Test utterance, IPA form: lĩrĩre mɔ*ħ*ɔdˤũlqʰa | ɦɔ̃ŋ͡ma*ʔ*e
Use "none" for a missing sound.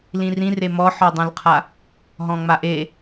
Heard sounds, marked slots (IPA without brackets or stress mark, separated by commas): ħ, ʔ